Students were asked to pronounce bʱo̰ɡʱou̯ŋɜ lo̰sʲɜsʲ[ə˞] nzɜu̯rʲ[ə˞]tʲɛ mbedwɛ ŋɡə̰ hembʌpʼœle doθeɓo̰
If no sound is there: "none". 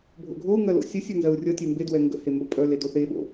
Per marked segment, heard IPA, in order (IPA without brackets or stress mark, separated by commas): ə˞, ʌ